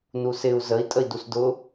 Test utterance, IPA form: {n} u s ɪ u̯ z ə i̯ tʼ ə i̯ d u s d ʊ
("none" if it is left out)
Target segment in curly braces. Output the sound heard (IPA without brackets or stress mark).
n